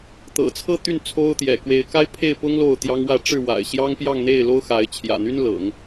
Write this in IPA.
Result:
t̪ɤ̰˨˩t͡sʰɤ˥˧ t̪y˥˩n t͡sʰo˥ʊ̯t̪jɛ̰˨˩ kwe˧˥ɪ̯ka˥ɪ̯ pʰe˥˩ɪ̯pʊ˥ŋ lo˥˩ʊ̯t̪jɑ˥ŋwä˥˧ ʈ͡ʂɻ̩˥˩wa̰˨˩ɪ̯ ɕjɑ˥ŋpjɑ˥˧ŋn̪e˥˩ɪ̯ lo˥ʊ̯xa˧˥ɪ̯ t͡ɕʰjä̰˨˩n̪y˥nlɤ̰˨˩˦ŋ

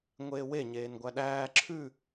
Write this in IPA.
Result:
ŋʷeːwe ɲeːnɡʷæɗæː ǁʰʉ

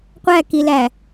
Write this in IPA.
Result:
qʷækilæ

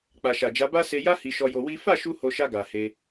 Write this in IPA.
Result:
k͡pa˨ʃa˨d͡ʒa˨˦ ba˦ se˧ja˦ hi˧ʃɔ˧jo˧ wi˦ fa˦˨ʃu˧ ho˧ ʃa˧ ɡa˨he˧

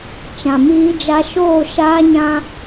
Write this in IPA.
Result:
t͡ʃã˨miː˦d͡ʒa˦ ʃoː˦˨ʃaː˦ɲã˦

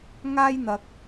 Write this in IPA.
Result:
ŋaː˥jn̪ɐ˨k̚

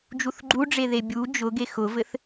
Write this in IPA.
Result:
d͡ʒuθɡ͡ǃuɖ͡ʐeðe bʲu d͡ʒʊ ɡexʊvɘθ

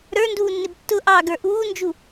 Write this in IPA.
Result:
ɾə˞nduːnːɪb tːʊʔɑːɡə˞ ʔuːnd͡ʒu

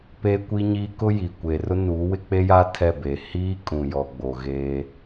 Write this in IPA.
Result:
pe˦ kʷi˦ɲiː˦ kʊ˦ ji˨kʷe˨rʊ˦ nuː˨˦wɪ˦k͡pe˦ja˦ tʰɛ˦˨be˨ hiː˦ kʼũ˨jɔ˨ɡ͡bo˨ ɣeː˦

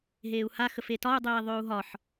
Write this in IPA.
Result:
ɦeːu̯haxəf etɒu̯dˤeː ðˤʏːu̯ɦɒħ

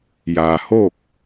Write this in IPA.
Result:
jaː˩hoː˥˨k̚

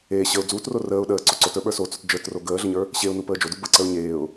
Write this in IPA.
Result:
eː ɕəʊ̯ d͡zuːtro rəːʊ̯ ɗəːǀo ǀotə˞ɓə˞ sot͡sot d͡ʒə˞tro ɡəːɮəɲə˞ | ɕeʊ̯nupəː d͡ʒodu bəǀəʊ̯ ɲeːʊ̯

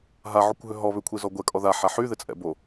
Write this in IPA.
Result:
ɦaʕukʷɦø ɦɔ βʏkʷʰi zɔɡʷɛkʼɔ ðaħa ħyðɪt͡sʼɛ̰bo

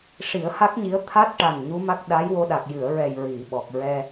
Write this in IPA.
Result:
ʂi˨˩˦ə̯ha˦˥k̚ɲi˧˥ə̯ t̪ʰa˦˥t̚ʈa˨˩n ɲu˧˥ma˦˥k̚ ɗa˧˥jwo˧ɗa˨˩k̚ jɨ˨˩˨ə̯ɹɛ˨˩j ɹi˨˩˨ ɓɔ˨˩k̚ɹɛ˧

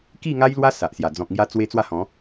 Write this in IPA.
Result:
ki˥˧ŋa˦jlwa˦ sa˨ʔsja˨˩ d͡zɔ̃˨k̚ŋja˦t͡swe˦ t͡swa˥˧hɔ̃˨˦

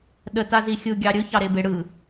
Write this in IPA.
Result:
ɗətazi xʲɯɡʲɑ ɾʲɵçɑɾebe ɽɯ

